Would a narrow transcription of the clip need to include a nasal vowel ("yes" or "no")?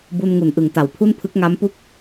no